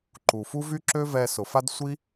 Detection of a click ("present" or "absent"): present